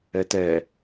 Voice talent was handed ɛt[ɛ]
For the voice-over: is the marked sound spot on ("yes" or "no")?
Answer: yes